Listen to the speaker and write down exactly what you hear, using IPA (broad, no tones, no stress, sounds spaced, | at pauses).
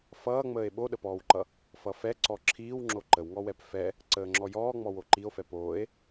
f ʌː ŋ͡m əː e̯ ɓ o ɗ ə p ɔː w ǃ ʌ | f ʌ f ɛ ǀ ɔ ǁʰ iː w ŋ͡ǁ o ǃ ə w ŋ ɔ w ɛ p f ɛ | ǀ əː ŋ͡ǁ ɔ j ɔː ŋ͡m ɔ w o ǃ i o̯ f ɛ p oː e̯